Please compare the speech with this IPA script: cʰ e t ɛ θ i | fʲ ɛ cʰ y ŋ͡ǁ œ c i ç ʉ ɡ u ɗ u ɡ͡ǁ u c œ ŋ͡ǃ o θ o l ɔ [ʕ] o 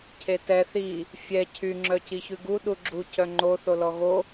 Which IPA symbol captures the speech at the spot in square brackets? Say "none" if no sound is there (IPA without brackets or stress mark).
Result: ɣ